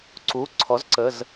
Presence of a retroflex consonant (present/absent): absent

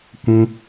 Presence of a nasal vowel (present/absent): present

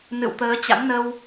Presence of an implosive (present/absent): absent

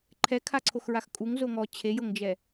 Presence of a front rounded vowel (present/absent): absent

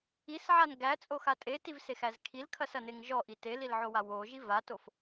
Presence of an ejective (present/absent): present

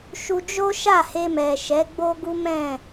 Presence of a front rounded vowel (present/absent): absent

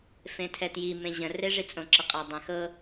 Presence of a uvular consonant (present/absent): present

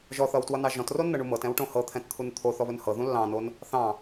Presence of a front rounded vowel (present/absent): absent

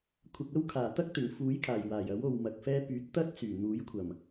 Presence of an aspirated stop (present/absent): present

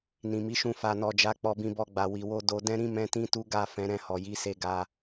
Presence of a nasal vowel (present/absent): present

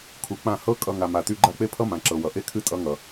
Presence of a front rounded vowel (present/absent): present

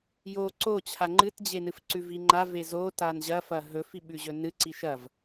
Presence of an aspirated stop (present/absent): present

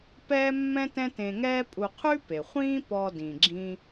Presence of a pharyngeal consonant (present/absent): absent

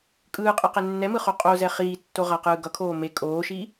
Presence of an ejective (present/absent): present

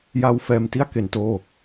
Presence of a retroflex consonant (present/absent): absent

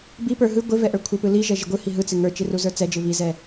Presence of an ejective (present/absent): absent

